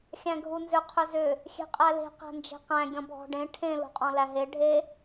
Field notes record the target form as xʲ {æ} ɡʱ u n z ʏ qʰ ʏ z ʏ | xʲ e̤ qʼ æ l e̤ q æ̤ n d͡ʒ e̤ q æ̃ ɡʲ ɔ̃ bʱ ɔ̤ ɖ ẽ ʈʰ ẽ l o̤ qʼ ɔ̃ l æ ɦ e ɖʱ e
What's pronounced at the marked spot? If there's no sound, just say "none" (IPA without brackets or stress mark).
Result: æ̃